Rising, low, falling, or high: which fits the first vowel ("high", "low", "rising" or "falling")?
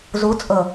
rising